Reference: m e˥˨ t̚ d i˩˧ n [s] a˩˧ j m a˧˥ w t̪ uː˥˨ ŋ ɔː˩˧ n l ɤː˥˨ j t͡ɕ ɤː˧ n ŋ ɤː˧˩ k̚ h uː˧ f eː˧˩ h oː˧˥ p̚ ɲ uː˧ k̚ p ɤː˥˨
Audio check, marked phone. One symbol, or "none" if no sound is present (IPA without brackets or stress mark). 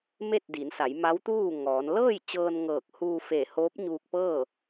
s